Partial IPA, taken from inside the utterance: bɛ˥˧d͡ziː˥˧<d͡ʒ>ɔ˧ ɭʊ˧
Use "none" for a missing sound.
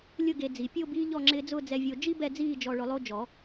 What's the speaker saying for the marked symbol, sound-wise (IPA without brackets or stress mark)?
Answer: d͡ʒ